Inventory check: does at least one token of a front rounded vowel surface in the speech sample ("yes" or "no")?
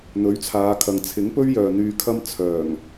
yes